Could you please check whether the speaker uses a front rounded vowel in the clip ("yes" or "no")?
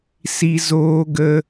no